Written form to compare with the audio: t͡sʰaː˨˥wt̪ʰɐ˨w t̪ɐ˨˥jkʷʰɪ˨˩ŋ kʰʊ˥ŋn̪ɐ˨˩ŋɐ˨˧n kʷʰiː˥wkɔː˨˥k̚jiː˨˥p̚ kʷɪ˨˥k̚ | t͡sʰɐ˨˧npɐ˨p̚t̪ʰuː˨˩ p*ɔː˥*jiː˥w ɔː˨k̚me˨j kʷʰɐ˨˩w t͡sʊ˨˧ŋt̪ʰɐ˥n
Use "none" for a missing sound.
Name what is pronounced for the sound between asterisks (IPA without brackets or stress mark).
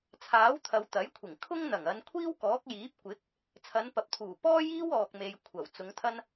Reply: ɔː˥